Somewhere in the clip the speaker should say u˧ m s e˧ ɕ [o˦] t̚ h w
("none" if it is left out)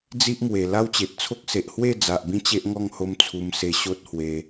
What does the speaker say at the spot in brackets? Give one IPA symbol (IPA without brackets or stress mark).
o˦